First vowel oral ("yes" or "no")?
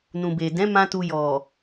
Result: no